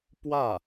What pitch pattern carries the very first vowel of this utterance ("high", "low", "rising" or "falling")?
falling